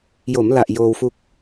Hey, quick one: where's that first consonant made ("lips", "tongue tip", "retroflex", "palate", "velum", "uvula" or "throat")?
palate